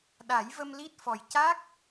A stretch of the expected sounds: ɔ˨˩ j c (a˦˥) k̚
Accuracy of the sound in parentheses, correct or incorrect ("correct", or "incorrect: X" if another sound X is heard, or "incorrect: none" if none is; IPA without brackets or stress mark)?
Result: correct